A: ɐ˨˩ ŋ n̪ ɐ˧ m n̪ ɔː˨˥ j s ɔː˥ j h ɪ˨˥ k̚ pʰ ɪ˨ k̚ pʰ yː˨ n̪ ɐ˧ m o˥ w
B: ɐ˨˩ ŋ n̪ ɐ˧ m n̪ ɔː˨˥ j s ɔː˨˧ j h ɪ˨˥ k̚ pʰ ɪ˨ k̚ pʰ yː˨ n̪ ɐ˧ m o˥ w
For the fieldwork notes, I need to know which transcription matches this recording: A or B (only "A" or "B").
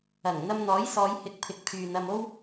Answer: B